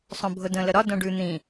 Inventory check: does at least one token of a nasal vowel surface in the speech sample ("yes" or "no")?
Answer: yes